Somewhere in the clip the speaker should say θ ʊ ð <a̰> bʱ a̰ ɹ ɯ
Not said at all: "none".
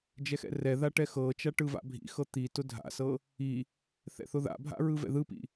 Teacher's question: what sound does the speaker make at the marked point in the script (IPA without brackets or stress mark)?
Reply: a̰